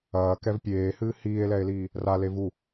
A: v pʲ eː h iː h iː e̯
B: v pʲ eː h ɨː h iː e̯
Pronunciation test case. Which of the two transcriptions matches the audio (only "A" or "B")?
B